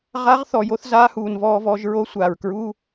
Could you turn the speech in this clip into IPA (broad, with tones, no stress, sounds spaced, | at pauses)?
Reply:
ʁ a˧˥ ʁ θ ɔ˨˩ j o˧˥ θ z aː˧˥ h uː˨˩ n v ɔː˧ v ɔ˧ ʒ ɹ o˧˥ sʷ aː˨˩ ɹ k ɹ uː˧˥˧